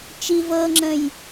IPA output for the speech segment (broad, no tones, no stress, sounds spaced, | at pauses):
t͡ʃ i v ɤ ŋ͡ǁ ə̃ j